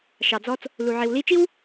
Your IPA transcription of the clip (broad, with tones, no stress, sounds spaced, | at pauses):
ʃ ɑ˨ d͡z ɔ˦ t͡s | l u˨ ʕ i˨ w l i˦ t͡ʃ i˦ w